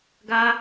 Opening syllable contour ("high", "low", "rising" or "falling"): high